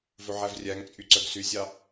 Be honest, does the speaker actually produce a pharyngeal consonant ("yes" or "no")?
yes